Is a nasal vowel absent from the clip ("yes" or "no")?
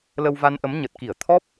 yes